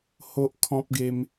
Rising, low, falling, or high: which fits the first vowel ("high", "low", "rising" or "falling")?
high